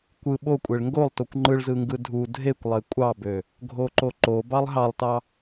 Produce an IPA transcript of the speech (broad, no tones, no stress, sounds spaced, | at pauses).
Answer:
kʷ ɯ ɓ o kʷʼ e ɭ ŋ ɡ o lˠ t o kʷ ŋ͡ǃ ɯ ɭ z ɯ ŋ ɡ ɯ dʱ u dʱ e kʷ lˠ e kʷʼ ɑ b ø | ɡʱ o ǃ o ǃ o b ɑ lˠ ɦ ɑ lˠ t ɑ